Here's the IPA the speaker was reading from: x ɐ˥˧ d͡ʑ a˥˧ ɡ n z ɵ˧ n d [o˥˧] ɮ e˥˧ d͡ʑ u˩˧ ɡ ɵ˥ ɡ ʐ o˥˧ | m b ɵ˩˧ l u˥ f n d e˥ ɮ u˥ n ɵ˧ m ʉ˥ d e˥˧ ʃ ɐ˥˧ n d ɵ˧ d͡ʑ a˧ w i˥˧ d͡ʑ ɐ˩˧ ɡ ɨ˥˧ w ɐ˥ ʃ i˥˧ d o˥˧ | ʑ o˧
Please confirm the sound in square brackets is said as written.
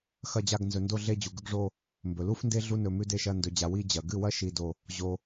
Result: yes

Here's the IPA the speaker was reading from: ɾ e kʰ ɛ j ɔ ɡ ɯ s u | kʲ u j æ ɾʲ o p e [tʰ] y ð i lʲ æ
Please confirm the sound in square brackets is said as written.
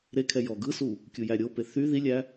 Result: no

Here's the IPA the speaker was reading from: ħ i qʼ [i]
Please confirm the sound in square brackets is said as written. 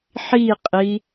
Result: yes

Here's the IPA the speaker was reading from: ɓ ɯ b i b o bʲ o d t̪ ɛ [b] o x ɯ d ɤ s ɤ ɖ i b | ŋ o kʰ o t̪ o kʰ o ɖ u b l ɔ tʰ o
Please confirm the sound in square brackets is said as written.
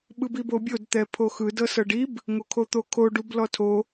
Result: no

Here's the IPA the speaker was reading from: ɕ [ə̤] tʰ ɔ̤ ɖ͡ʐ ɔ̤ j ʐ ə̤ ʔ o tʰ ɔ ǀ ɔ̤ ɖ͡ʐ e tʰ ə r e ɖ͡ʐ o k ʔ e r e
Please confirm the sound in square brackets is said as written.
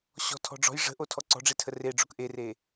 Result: no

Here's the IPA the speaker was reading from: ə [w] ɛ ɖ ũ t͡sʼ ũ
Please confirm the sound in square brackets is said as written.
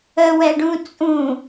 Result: yes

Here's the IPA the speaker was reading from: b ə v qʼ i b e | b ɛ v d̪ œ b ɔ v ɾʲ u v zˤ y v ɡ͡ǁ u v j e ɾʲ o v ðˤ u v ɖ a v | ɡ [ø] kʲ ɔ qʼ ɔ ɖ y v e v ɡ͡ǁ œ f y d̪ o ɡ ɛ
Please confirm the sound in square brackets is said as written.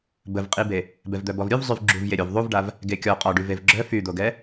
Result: no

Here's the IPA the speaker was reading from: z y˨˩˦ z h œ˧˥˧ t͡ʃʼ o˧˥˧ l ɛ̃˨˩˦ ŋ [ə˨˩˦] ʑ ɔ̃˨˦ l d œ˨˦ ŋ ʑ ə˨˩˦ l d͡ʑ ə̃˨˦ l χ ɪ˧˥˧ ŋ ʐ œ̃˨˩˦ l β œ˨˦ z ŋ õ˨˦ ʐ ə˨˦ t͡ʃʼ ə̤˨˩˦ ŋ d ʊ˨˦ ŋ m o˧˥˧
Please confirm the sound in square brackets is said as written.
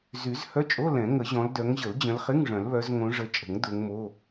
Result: yes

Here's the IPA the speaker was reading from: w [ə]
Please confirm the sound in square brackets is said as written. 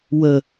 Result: yes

